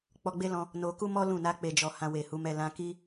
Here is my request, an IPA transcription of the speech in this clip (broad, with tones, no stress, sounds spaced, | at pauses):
k͡p ɔ˧ ɡ͡b e˦ l ɔ̃˧ | n o˧ k u˦ m ɔ˦ l ũ˦˨ n a˧ k͡p e˨ d͡ʒ ɔ˨ h ã˧ w e˨ h u˨˦ m ɛ˧ l ã˧ k i˦